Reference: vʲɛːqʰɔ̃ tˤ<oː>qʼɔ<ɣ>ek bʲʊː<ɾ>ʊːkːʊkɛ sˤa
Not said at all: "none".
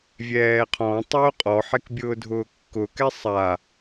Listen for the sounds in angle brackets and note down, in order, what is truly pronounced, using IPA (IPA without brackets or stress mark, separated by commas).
oː, ħ, dʱ